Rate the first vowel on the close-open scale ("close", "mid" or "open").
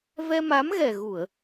mid